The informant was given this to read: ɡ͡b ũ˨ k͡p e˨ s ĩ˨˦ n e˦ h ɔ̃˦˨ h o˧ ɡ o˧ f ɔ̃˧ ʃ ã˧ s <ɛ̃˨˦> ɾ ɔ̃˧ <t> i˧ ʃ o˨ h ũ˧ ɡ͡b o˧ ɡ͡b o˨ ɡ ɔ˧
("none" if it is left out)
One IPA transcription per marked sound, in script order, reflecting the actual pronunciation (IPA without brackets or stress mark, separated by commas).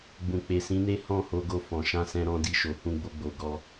ɛ̃˧, d